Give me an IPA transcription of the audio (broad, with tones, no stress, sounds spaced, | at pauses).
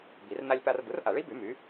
b i˨˩˦ r n a˦ lʲ p a˦ r b ɯ˩˥ r ʔ a˨˩˦ ɭ i˩˥ b y˨˩˦ m y˩˥